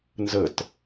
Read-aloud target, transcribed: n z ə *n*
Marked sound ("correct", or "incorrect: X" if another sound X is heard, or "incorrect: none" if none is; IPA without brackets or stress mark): incorrect: t